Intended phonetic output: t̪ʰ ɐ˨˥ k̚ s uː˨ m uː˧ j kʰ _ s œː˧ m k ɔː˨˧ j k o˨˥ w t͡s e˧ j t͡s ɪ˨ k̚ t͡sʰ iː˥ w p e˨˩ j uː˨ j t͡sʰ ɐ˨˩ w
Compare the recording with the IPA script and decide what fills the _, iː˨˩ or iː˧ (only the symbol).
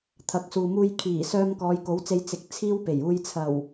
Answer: iː˨˩